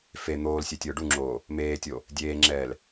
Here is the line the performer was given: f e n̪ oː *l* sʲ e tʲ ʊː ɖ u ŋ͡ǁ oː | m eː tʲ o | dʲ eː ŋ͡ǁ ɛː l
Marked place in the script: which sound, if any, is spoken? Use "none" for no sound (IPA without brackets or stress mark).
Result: l